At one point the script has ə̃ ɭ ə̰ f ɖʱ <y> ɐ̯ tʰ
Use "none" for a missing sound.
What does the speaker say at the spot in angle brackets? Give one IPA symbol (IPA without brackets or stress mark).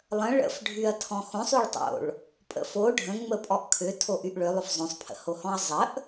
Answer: y